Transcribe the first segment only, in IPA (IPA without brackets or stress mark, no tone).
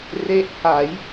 r